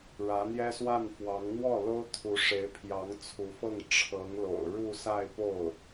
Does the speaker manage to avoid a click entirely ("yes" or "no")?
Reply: yes